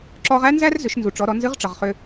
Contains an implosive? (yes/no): no